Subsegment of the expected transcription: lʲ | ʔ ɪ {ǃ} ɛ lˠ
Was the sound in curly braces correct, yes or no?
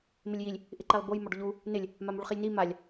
yes